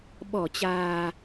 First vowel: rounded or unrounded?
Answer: rounded